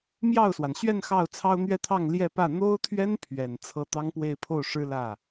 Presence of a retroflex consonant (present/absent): present